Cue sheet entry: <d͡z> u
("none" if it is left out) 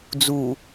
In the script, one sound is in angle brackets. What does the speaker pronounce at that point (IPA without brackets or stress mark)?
d͡z